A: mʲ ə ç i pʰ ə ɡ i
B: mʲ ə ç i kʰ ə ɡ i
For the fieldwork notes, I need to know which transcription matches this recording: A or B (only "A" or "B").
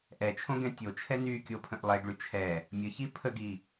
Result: A